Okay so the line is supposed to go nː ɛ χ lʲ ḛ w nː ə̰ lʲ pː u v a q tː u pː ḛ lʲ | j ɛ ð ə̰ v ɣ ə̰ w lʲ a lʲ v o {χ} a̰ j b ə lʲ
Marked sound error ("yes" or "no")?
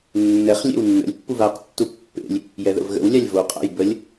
yes